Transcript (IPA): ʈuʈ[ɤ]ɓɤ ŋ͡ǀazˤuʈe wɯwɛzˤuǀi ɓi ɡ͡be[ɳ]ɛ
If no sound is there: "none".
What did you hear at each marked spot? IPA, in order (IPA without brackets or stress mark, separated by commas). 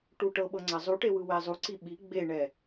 ɤ, ɳ